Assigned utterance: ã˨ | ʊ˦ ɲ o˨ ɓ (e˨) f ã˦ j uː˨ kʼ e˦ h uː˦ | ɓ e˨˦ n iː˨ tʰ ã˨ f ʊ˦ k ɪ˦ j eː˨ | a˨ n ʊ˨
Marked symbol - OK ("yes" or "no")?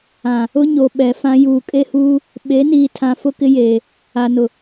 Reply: no